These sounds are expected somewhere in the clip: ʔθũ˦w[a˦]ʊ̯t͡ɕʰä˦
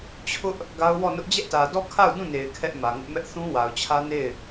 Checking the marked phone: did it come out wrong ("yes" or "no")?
yes